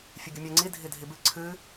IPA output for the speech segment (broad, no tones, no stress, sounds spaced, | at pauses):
fʲ ɨ ɡʲ ə mʲ ɛ ŋ͡ǀ i dʱ i dʱ i b ɨ ǀʰ ɨ